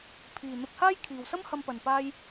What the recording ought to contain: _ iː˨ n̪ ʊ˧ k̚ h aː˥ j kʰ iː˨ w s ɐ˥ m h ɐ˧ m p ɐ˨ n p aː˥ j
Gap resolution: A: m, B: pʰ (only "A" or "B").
B